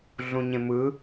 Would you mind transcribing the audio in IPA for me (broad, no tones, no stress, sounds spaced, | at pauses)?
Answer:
ɮ ũ ɲ ẽ m ɯ